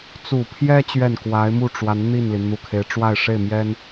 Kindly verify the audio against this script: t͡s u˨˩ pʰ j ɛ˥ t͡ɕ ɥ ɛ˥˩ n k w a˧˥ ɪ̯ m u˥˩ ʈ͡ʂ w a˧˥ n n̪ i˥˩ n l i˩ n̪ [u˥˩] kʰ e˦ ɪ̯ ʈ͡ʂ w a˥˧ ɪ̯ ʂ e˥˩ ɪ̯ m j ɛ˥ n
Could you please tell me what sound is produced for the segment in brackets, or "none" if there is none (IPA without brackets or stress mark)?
u˨˩